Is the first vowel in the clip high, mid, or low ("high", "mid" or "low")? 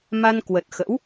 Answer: low